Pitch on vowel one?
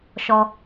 high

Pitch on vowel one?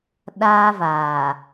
high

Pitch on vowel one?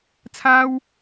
high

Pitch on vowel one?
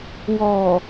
low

